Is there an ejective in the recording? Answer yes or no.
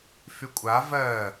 yes